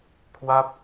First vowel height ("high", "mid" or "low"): low